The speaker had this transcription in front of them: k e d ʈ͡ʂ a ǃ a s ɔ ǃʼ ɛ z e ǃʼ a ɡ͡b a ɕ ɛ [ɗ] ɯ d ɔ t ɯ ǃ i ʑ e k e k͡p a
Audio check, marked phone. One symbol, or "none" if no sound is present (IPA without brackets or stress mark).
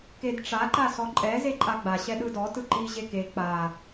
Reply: ɗ